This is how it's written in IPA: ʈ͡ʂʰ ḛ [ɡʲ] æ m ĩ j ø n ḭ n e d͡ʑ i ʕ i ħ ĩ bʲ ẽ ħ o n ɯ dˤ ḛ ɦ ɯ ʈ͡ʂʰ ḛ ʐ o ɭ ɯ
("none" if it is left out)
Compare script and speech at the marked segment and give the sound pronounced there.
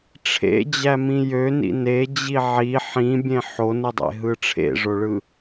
d͡ʑ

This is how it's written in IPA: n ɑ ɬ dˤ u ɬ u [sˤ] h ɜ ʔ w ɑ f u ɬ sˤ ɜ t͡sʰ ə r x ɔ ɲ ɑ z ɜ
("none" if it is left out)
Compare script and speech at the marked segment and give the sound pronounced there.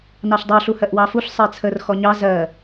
none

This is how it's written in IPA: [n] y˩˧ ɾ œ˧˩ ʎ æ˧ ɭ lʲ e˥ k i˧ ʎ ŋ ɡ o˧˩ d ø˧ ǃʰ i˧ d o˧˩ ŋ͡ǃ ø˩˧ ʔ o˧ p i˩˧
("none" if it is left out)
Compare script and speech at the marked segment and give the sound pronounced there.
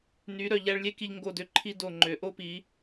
n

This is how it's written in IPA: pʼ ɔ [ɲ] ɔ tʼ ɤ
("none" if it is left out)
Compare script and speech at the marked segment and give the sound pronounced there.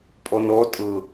n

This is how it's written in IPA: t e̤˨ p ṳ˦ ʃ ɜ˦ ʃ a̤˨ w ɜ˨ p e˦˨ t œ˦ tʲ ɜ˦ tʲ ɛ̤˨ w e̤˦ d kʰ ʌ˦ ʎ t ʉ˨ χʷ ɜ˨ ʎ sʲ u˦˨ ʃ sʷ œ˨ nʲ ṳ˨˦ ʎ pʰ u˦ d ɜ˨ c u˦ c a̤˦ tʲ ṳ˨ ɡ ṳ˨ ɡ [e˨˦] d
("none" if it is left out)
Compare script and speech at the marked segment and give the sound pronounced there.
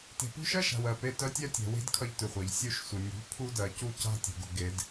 e˨˦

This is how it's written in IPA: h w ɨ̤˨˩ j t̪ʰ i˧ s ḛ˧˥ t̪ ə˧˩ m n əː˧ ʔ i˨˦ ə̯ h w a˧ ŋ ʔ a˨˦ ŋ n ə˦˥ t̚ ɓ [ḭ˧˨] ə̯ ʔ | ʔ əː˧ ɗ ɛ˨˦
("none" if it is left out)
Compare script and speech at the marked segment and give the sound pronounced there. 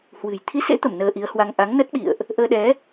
ḭ˧˨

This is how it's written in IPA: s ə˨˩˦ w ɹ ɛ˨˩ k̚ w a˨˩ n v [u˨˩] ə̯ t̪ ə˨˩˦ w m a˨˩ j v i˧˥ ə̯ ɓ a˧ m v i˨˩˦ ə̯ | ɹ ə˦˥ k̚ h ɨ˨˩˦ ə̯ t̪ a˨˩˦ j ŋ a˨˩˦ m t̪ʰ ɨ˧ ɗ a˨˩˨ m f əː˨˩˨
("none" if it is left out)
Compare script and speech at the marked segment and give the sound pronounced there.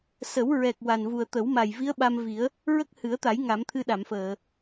u˨˩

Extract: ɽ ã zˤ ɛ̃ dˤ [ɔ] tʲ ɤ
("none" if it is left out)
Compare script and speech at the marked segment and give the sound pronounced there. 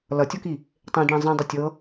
o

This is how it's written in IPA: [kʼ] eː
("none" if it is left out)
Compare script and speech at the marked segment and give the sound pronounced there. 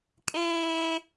kʼ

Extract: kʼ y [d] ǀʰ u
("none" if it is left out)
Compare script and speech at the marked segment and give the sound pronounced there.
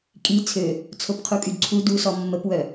d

